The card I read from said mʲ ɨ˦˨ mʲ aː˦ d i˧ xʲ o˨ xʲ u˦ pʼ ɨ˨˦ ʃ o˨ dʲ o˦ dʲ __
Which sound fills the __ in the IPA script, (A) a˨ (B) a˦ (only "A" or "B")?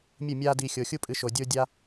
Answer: B